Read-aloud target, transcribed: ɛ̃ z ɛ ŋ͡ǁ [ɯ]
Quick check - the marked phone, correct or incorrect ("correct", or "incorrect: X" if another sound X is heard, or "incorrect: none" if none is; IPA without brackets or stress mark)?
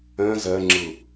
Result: correct